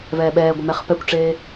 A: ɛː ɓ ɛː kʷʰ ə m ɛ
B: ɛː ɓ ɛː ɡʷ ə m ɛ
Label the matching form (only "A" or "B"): B